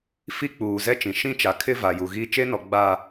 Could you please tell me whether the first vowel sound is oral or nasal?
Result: oral